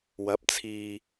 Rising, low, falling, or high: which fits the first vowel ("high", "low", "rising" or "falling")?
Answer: rising